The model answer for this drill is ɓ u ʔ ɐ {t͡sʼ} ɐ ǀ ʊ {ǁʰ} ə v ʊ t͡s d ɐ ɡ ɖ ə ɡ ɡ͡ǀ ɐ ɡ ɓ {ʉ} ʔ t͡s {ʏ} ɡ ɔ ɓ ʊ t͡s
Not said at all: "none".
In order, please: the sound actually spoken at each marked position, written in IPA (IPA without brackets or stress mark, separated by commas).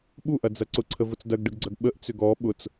d͡z, ǀʰ, ə, ʏ